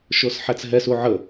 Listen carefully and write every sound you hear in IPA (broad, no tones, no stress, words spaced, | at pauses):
ʃosħæt͡sɦɛs uʕə